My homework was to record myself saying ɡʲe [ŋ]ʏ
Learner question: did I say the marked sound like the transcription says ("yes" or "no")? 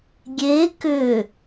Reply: no